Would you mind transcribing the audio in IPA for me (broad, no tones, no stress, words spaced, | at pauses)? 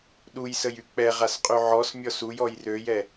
ɗujsəjy k͡pɛʁasqʼy ʕɔsmʲɔs ujɔj røjɛ